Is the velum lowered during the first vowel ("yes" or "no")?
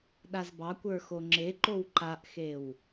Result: no